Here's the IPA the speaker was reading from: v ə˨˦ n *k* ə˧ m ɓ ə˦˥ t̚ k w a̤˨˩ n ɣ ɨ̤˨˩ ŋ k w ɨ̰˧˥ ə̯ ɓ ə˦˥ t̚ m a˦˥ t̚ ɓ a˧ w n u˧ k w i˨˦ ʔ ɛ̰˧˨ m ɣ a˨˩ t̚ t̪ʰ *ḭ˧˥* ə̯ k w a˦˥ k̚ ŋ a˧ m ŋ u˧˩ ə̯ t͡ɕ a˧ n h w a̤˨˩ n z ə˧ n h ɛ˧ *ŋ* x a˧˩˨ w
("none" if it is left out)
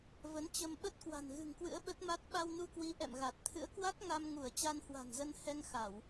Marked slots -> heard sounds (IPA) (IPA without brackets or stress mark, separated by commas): t͡ɕ, ɨ̰˧˥, ŋ